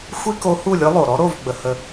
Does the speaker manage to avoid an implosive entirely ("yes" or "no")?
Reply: yes